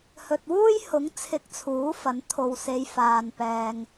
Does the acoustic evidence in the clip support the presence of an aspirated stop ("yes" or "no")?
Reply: yes